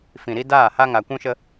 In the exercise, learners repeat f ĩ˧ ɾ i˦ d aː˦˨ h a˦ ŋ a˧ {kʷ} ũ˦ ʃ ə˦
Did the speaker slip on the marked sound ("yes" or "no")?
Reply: no